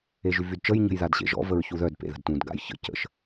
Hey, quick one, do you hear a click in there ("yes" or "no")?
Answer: no